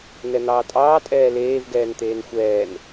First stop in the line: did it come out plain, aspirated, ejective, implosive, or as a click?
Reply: ejective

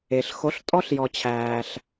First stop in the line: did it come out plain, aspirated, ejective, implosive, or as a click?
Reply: ejective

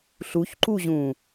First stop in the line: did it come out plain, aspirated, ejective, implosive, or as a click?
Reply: click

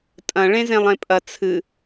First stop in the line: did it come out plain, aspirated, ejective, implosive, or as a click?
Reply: ejective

